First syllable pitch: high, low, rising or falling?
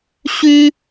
high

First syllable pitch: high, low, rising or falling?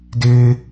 high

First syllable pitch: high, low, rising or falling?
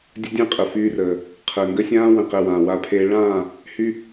high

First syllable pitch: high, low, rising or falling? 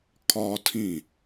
high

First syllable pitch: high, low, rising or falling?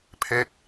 falling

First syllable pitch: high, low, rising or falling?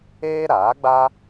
high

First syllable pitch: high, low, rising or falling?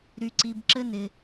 high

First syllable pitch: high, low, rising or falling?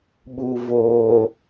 low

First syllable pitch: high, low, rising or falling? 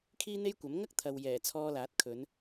high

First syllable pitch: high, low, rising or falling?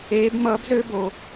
rising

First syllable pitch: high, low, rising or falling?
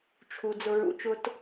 low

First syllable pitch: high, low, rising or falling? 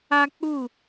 high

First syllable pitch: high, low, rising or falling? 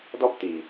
high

